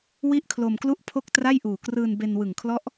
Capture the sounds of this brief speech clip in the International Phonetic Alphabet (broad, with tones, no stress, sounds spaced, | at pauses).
w i˥˩ ʔ kʰ l o˧ m k l u˥˩ ʔ pʰ o˥˩ k̚ t r a˥˩ j ʔ uː˨˩ k r ɯː˧ n b e˧ n w ɯ˨˩ ŋ kʰ l ɔ˦˥ ʔ